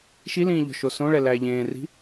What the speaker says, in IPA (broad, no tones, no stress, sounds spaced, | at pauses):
ʃ i l ĩː ʎ ɔ̤ ʃ o s õ ɭ ɛ l æ ʎ ẽː r i̤